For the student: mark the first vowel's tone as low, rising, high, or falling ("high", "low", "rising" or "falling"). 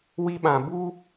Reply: high